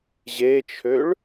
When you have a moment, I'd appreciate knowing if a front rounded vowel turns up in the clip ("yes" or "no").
yes